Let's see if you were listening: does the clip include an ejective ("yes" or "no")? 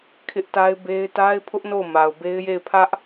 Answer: no